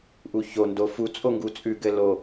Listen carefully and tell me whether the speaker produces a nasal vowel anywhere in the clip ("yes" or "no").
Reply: no